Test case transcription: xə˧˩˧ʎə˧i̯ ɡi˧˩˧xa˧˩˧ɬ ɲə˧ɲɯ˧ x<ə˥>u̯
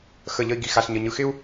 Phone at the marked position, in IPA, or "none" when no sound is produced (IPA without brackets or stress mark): ɪ˥